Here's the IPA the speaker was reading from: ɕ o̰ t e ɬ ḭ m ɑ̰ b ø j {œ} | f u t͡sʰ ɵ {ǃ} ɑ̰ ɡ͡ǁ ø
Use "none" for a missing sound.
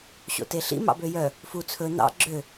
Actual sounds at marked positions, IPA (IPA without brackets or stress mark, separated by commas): œ, n̪